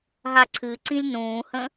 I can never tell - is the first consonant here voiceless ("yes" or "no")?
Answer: no